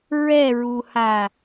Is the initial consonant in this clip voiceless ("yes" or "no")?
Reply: no